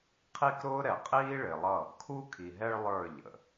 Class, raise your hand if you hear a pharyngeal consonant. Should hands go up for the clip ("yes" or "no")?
no